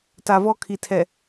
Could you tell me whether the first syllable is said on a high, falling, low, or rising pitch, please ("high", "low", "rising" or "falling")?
low